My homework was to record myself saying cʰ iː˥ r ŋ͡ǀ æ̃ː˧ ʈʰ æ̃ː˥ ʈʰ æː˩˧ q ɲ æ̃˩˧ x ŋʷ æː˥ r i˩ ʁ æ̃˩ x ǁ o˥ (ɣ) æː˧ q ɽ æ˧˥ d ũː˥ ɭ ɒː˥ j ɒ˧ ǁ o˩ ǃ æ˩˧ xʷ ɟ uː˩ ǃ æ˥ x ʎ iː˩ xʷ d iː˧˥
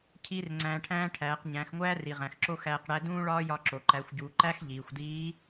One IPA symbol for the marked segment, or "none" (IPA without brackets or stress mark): x